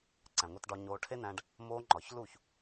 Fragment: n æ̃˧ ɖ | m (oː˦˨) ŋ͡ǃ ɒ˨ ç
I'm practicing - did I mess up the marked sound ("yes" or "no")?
yes